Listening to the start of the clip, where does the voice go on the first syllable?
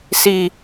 high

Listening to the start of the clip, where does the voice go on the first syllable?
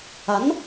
rising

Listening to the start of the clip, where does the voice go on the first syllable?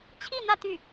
falling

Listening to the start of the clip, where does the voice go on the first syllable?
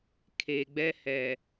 low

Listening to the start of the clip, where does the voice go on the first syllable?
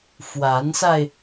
rising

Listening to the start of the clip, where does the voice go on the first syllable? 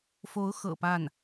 rising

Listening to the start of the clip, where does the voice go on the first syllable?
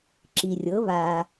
low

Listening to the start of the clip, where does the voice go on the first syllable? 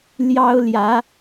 high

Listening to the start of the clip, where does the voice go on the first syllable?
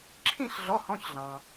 falling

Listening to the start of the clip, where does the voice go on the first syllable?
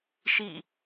falling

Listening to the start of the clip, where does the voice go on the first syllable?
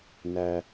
high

